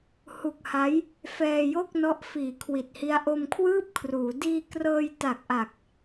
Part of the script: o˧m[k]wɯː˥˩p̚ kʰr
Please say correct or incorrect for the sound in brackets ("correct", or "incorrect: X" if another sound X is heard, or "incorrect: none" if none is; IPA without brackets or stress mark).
incorrect: kʰ